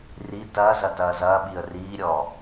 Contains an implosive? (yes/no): yes